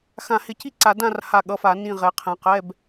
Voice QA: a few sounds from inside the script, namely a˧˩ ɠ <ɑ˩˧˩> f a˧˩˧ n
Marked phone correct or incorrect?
incorrect